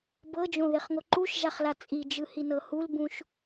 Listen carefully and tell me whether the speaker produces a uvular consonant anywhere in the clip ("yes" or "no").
yes